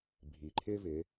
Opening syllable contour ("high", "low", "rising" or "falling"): low